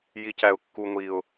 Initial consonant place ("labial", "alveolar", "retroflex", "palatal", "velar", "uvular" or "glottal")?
palatal